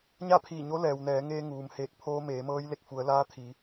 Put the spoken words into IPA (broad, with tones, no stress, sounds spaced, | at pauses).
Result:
ɲ a˥˨ pʰ iː˧˩ ɲ o˧˥ l ɛː˩ w n ɛː˩˧ ŋ eː˧ ŋ uː˩ m h eː˧˩ k̚ pʰ oː˧ m eː˩˧ m ɤː˧˥ j l e˧˩ k̚ f u˩˧ ə̯ l aː˧˥ t̪ʰ i˩˧